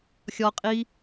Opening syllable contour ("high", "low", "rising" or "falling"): high